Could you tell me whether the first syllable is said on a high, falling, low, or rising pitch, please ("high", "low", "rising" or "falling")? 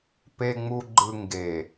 low